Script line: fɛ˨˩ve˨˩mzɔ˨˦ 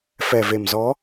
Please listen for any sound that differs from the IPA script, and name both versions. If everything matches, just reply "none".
none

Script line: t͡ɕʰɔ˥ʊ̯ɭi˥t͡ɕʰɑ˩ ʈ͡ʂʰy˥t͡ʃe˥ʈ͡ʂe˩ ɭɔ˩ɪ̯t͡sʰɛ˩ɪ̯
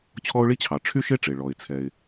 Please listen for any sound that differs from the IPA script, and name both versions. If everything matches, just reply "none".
t͡ʃ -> ʃ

